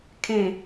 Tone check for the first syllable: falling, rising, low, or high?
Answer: falling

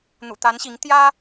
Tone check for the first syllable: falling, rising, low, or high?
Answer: low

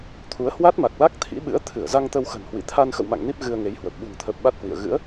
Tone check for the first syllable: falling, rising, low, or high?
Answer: rising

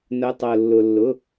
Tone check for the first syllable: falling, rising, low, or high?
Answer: rising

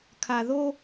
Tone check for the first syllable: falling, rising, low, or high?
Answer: low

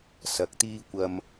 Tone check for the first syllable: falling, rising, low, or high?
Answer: low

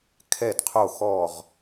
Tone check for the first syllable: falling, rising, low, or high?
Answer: falling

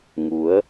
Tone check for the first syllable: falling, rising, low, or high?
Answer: rising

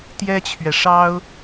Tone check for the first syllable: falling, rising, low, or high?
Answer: high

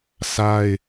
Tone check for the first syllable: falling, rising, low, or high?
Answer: high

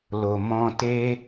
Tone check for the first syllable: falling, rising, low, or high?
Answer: low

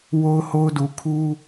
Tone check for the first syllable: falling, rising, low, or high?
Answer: high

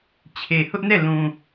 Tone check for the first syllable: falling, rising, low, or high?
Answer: low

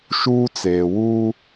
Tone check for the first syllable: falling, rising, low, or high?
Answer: high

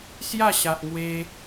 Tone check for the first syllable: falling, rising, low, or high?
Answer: falling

